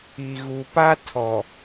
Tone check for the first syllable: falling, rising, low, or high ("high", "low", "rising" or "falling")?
low